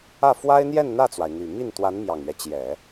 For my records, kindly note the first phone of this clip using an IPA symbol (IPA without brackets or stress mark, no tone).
ä